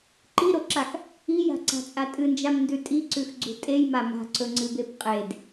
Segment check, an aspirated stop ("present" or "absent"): absent